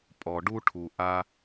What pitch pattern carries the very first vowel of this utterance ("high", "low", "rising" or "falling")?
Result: low